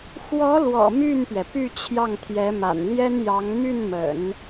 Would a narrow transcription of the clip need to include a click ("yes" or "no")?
no